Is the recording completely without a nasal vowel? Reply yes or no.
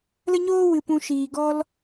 no